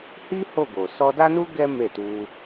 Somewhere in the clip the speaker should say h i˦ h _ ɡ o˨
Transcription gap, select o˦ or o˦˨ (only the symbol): o˦˨